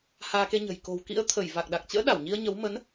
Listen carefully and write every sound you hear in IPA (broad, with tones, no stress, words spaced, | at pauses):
haː˧ke˧ɲə̤˨˩j ko̤˨˩wkḭ˧˥ə̯t̪ʰə˧˩j va˨˩k̚ɗa˨˩k̚t͡ɕə̰ː˧˥ ɗa˧˩wɲi˧ə̯ɲə˨˦w mə˨˦n